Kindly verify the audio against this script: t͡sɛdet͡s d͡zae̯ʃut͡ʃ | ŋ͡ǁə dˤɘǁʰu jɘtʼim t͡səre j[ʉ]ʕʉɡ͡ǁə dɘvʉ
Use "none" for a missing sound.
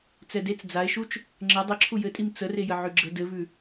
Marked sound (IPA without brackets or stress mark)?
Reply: ə